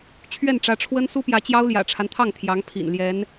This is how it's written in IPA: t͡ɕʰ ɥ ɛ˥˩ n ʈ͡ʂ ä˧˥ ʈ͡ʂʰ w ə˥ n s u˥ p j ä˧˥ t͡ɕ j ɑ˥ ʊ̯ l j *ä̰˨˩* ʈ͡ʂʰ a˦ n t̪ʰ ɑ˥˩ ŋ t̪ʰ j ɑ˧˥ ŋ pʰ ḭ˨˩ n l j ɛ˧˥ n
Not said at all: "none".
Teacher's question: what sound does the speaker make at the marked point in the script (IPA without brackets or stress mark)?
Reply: ä̰˨˩